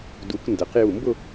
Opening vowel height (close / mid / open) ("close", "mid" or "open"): close